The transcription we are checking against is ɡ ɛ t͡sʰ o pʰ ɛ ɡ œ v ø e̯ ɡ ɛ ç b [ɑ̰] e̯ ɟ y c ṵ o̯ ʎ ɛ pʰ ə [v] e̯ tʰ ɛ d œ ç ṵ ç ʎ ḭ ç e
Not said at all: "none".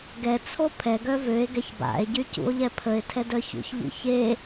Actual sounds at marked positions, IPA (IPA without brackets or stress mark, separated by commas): a̰, none